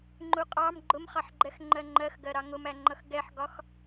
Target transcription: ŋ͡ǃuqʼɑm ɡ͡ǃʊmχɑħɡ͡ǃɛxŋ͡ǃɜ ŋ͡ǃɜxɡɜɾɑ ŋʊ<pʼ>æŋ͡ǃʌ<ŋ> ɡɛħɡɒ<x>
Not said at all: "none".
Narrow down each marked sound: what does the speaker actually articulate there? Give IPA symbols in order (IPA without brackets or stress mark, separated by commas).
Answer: m, x, x